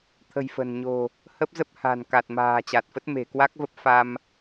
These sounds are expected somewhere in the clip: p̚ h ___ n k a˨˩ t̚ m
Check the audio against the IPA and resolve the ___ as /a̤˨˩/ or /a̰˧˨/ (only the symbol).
a̤˨˩